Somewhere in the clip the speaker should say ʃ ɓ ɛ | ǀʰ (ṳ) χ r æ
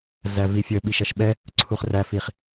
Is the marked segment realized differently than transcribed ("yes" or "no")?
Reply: yes